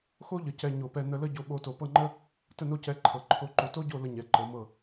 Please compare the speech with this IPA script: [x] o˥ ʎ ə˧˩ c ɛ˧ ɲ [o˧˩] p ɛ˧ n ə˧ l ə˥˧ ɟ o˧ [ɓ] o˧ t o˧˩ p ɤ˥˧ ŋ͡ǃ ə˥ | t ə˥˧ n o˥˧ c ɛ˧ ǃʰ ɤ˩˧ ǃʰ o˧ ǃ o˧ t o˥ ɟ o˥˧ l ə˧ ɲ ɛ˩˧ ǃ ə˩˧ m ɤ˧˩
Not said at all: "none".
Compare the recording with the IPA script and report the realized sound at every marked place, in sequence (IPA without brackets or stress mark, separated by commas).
x, o˧˩, ɓ